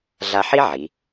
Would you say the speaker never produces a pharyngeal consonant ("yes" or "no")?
no